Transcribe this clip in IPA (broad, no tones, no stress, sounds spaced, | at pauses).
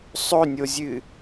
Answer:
sˤ ɵ nʲ o zʲ ɨ